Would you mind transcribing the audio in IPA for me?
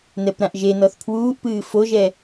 n ɛ p ɾ ã ʔ ʒ e n ɔ θ pʰ w uː ʔ p ɨː f o ʒ ɛ

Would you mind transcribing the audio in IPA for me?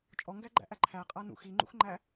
t͡ʃʼ ɔ ŋ ɡ æ ɡ͡ǃ æ̰ ʔ æ ǃʰ æ qʼ a n ṵ x i ŋ͡ǃ ṵ x ŋ͡ǃ æ

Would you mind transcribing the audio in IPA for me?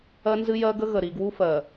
ɜ˦ n z ɨ˦ j ɜ˦ ɡ ə˦ ɣ ə˨ ɾ i˨ ɡ w u˦ f ɜ˨

